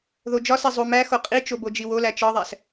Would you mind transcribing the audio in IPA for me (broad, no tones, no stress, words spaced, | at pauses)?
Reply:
ðod͡ʒɒse zˤumæ xoqʼit͡ʃo bod͡ʒiwolæ t͡ʃɒðˤæs